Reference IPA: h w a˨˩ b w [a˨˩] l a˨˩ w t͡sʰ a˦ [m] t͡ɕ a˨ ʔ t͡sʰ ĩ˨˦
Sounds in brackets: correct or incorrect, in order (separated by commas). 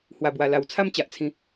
correct, correct